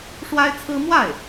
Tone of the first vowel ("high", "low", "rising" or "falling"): high